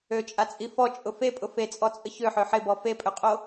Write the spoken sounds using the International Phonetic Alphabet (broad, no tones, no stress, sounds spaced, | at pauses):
ø t͡ʃʼ a t͡sʼ i f ɔ t͡ʃʼ ʊ f e pʼ ʊ f e t͡sʼ ɔ t͡sʼ ə ç ø ħ ø ħ ɪ b ɔ f e pʼ ø qʼ o